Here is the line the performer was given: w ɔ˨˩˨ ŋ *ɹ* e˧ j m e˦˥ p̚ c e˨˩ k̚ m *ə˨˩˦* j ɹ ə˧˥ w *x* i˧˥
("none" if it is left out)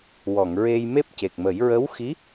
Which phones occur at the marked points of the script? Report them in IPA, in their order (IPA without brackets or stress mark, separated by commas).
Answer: ɹ, ə˨˩˦, x